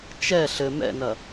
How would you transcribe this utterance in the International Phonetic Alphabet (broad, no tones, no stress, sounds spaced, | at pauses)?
t͡ʃ ɛ ɬ ɘ m ɛ̰ n ɐ